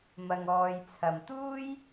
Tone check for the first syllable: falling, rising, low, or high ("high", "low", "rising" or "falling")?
low